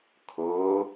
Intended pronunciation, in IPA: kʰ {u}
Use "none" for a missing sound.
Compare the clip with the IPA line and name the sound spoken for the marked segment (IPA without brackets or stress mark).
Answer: o